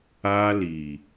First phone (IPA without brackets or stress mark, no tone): a